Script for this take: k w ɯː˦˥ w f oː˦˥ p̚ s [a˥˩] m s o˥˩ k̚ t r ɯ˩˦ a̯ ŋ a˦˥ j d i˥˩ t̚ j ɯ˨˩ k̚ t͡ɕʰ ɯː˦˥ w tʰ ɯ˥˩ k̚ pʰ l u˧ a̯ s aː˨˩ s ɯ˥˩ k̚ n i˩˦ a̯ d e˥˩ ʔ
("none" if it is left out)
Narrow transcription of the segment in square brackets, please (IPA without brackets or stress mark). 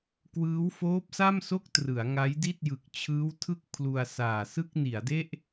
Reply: a˥˩